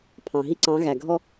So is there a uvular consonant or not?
no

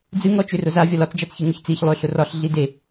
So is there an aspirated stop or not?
no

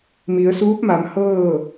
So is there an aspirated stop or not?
no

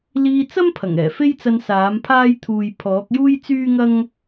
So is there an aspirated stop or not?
yes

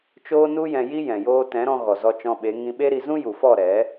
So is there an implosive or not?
yes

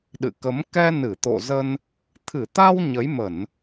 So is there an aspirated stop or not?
yes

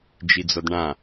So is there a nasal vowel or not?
yes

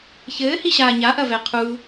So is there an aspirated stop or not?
yes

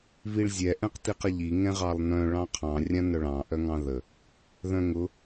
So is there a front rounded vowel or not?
yes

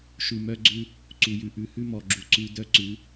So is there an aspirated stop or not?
no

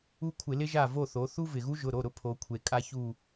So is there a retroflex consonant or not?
no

